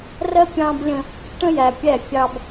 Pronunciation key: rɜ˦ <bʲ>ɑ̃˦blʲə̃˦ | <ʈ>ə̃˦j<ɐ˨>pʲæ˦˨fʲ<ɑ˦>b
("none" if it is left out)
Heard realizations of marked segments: pʲ, ʈ, æ˨, ɑ˦

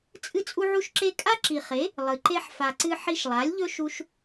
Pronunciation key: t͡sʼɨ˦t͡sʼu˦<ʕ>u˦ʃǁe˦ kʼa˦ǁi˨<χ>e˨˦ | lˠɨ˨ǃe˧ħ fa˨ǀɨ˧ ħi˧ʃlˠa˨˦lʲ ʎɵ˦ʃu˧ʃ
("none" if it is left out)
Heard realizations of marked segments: ʕ, χ

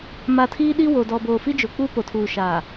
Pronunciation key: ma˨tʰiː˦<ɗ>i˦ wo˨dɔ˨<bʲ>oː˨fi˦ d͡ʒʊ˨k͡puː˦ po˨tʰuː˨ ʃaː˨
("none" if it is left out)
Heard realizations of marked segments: ɗ, b

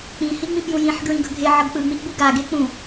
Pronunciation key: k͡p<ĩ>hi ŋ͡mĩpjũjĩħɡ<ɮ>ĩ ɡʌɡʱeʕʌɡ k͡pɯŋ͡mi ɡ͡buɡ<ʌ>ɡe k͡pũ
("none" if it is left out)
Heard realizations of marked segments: ĩ, ɹ, a

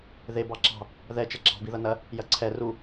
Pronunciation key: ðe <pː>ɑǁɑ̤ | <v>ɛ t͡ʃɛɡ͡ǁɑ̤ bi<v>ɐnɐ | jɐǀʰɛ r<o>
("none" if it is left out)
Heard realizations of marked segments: b, ð, ð, u

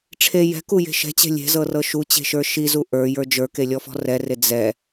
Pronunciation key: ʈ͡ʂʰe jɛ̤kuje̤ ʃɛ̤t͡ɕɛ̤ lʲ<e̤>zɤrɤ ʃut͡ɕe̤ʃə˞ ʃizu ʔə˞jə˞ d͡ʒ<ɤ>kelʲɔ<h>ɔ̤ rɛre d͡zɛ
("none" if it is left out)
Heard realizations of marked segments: e̤, ə˞, f

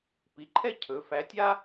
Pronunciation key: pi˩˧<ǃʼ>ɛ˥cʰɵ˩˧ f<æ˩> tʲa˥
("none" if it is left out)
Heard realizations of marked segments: ǃʰ, æ˧˥

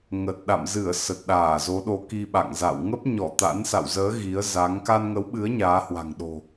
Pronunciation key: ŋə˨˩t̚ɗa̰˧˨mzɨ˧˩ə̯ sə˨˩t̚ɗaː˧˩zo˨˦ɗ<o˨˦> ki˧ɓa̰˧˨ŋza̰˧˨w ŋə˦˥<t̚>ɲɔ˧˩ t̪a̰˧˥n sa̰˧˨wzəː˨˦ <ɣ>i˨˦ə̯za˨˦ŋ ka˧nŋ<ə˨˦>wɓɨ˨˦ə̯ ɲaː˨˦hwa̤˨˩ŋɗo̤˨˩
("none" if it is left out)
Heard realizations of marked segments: o˨˦, p̚, ɣ, ə˨˦

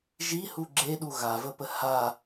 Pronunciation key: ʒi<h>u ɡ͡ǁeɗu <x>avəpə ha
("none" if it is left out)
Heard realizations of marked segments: h, ɣ

